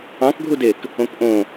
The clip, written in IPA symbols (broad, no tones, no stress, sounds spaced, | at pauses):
ɑ̃ k ɡʱ u d e k | õ k ʔ õ